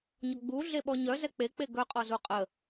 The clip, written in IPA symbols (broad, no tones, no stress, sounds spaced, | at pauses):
ɲ ɔ ɡ͡b u ɮ e ɓ ɔ ɲ œ z ɛ k͡p e k͡p e ɡ œ qʼ ɔ z u qʼ ə